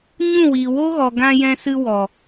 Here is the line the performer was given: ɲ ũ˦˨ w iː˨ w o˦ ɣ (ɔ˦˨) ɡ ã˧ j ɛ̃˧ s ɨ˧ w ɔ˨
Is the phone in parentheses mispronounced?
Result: yes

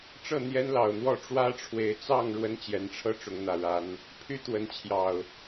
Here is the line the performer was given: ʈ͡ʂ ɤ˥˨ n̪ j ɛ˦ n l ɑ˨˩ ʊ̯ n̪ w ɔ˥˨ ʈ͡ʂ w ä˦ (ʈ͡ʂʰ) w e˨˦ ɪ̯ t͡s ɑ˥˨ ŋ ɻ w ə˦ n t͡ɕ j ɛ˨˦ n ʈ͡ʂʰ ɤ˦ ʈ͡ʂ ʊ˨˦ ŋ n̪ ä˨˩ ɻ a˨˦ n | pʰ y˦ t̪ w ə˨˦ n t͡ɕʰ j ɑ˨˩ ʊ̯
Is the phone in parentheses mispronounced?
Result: no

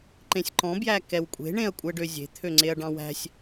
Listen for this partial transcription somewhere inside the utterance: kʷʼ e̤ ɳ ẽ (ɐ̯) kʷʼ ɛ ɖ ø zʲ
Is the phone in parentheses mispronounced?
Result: no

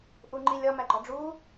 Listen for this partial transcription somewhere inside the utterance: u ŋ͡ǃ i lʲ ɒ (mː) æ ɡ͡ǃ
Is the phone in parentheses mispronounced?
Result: yes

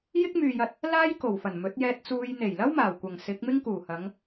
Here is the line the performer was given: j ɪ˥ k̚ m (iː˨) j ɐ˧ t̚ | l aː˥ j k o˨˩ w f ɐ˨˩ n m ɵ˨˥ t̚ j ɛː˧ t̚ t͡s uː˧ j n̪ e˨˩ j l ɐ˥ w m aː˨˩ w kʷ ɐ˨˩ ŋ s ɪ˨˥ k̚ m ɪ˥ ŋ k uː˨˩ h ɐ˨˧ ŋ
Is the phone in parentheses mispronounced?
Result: yes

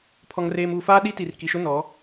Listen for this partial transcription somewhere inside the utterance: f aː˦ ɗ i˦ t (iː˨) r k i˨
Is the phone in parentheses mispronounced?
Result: yes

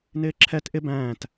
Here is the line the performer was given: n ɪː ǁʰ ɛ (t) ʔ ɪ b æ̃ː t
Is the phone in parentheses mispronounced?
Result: no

